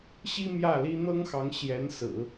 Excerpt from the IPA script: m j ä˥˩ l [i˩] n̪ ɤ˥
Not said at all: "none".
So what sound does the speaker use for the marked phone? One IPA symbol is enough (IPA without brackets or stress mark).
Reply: i˥